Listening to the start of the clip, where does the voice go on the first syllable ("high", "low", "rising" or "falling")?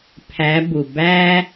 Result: rising